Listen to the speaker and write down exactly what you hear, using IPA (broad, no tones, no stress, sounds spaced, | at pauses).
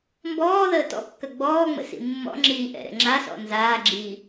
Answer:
m b ɔː ð əː t ɔ̰ kː ɐ ɡ͡b ɔː ŋ͡m ə̰ s ḭ mː ɔ̰ ŋ͡ǁ iː ʔ ɛ̰ ɾ ɛ̰ ŋ͡ǁ a s ɔ̰ n z aː ɡ͡ǁ iː